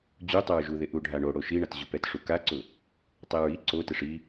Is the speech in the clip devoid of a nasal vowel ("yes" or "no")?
yes